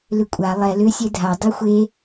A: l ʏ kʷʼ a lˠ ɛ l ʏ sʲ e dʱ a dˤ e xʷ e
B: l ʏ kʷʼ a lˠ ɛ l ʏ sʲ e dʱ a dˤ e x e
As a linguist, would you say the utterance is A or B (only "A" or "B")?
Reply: A